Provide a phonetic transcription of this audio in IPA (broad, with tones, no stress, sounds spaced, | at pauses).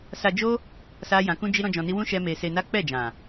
s a˧ d͡ʒ o˦ | s a˦ j ã˧ k ũ˦ d͡ʒ i˦ ɾ ɔ̃˦ d͡ʒ ɔ̃˧ n i˦ w ũ˦ ʃ ɛ˦ m e˧ s e˧ n a˦ k͡p ɛ˦˨ d͡ʒ ã˨